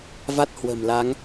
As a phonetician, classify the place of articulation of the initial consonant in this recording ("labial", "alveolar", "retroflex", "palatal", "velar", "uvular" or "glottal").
labial